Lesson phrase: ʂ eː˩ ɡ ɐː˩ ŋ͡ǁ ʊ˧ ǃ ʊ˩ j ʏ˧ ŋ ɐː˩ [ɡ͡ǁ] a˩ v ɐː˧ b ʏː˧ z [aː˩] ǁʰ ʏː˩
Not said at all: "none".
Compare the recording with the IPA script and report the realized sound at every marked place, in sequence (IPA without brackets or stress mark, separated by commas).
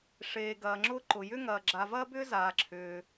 ɡ͡ǁ, aː˩